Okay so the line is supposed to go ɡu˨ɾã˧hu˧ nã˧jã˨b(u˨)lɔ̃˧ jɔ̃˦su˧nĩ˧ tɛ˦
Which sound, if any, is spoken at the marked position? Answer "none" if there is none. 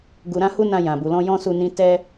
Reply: u˨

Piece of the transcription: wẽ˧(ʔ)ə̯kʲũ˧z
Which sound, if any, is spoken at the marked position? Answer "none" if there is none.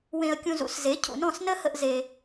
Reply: none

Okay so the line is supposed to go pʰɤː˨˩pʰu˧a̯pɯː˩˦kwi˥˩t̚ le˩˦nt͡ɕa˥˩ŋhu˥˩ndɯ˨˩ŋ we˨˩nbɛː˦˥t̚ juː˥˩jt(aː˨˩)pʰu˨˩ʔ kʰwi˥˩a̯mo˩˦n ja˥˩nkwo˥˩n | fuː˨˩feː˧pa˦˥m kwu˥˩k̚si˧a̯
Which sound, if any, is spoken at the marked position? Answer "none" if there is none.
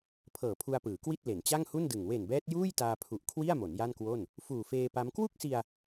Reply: aː˧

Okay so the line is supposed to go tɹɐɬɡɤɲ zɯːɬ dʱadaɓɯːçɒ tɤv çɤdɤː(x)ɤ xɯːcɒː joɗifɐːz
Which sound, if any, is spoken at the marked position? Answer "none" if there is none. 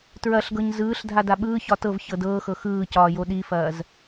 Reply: x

